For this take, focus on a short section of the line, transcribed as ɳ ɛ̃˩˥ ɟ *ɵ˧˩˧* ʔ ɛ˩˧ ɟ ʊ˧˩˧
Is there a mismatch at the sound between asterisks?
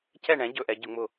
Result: no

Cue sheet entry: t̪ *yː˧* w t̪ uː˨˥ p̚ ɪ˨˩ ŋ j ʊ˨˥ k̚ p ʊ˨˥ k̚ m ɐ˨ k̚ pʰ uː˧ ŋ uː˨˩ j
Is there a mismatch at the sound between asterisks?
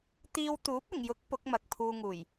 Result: yes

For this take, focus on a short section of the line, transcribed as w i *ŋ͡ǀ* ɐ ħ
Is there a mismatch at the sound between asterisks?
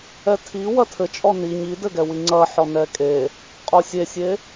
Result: no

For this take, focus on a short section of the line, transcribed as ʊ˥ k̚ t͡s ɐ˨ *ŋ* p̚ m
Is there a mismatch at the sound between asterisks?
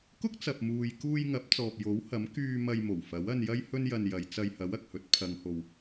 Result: yes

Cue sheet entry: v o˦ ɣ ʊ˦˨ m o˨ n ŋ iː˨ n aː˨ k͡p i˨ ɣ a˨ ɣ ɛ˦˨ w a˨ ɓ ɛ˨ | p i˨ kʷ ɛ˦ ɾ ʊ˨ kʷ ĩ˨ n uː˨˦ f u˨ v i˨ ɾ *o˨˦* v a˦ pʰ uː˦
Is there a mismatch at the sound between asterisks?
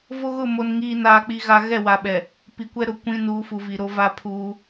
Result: yes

